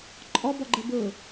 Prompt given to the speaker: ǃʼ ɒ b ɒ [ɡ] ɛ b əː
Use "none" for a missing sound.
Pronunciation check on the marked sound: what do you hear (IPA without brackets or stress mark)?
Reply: ɡ͡ǃ